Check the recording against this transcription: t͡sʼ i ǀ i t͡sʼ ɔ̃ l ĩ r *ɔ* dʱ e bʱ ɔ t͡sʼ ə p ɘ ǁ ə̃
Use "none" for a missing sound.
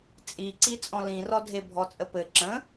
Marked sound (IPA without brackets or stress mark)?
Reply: ɔ